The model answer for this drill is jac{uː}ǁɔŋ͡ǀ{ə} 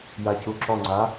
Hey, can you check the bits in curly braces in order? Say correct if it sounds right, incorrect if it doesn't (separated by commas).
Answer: incorrect, incorrect